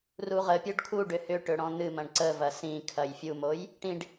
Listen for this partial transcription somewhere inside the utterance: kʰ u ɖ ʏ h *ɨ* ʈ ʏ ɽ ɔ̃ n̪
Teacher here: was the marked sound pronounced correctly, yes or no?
no